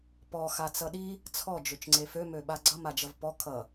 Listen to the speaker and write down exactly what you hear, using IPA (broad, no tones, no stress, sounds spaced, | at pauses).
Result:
p ɔ x a t͡s ʌ ɗ i | t͡sʰ ɔ d͡ʒ ø t͡ʃ ŋ͡ǀ e f ø m ø ɓ a ɡ͡ǀ ʌ m a d͡ʒ ʌ v p ɔ kʰ ʌ